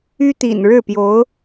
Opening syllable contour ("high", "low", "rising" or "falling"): high